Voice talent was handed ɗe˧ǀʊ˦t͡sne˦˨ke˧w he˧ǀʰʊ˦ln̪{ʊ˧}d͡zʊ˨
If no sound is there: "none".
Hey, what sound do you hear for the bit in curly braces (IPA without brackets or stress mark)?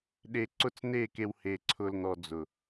ɔ˧